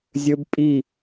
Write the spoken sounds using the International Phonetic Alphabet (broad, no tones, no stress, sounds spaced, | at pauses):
zʲ ɵ b pʼ i